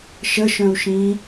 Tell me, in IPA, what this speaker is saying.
ʃ ə ʃ œ̃ u̯ ʃ ĩː

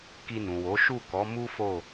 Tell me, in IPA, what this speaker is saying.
k i˧ n ũ˨ w o˨˦ ʃ u˦˨ k ɔ˨˦ m u˦ f o˦˨

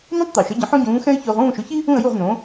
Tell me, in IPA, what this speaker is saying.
n ĩ˥ tˤ t̪ ə˩ ʊ̯ ʃ ə˩˥ ɟ ə̃˩˥ ħ õ˥ ɟ ũː˩˥ x ɛ̃˥ ɪ̯ ç ʊː˧ ʁ ũː˥˩ ʃ ʊ˩˥ ç i˥ | ũ˥˩ ə̯ j u˥˩ ʁ n õ˩˥

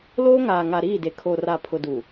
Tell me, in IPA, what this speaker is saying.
l oː˦ ŋ aː˨ ŋ a˨ ɾ iː˦˨ d e˨ kʰ o˨ r a˨ pʰ ʊ˨ d u˨

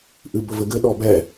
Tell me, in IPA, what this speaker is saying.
ʔ ɨ b ɵ v ɘ ɡ ɘ ɗ ɔ b ɛ

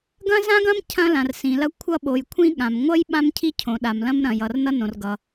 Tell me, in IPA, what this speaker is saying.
ɡ ɐ̃˥ z ã˥ ɡ ɐ̃˥ m cʰ ɐ̃˥ l ã˨ r s ĩ˨ l ɐ˥ kʷʰ ʌ˥ ɓ o˨ j kʷʰ ĩ˥ ɠ ã˨ m ŋʷ ʌ˥ j ɓ ã˥ m cʰ i˥ cʰ õ˨ ɗ a˨ m l ɐ̃˥ m ɾ ɐ̃˨ j ʌ˨ r n ʌ˥ n õ˨ r ɡ ʌ˨

